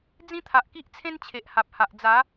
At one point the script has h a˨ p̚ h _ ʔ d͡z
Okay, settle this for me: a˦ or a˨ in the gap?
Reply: a˨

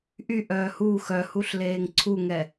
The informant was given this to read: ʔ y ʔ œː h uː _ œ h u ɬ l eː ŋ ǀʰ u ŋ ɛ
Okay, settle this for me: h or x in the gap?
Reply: x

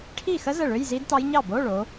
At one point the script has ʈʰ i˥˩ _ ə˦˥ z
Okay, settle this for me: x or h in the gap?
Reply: x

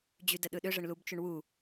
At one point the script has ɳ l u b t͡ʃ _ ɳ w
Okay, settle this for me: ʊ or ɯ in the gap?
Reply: ʊ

